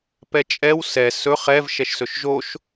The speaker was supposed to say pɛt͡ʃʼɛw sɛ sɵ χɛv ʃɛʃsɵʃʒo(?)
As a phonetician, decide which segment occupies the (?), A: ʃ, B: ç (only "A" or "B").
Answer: A